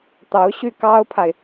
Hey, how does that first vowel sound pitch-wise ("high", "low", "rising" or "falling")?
rising